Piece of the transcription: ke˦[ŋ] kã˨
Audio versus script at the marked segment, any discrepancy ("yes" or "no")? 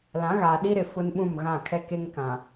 no